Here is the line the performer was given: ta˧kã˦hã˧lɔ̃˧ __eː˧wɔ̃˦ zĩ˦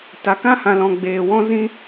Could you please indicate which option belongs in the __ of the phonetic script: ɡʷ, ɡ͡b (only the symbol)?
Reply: ɡ͡b